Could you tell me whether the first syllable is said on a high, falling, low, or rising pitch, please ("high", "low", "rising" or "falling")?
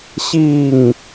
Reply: falling